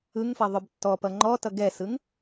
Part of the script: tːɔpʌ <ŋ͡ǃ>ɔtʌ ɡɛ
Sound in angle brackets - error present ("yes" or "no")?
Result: no